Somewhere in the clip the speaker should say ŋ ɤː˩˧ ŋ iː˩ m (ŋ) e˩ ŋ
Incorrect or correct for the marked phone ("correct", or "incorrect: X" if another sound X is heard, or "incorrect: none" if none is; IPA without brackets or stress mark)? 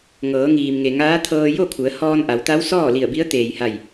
correct